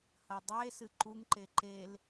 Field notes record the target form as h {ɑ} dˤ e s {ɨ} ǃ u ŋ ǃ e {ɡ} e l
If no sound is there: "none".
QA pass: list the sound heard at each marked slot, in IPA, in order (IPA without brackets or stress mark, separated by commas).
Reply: ɐ, ɨ, ǃ